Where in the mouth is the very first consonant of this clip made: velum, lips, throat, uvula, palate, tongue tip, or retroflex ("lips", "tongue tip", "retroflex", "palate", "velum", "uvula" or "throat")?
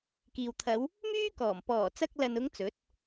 velum